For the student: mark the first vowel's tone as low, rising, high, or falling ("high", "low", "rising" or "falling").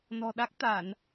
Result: low